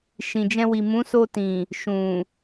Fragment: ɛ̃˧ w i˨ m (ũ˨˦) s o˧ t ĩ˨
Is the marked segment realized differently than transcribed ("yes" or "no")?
no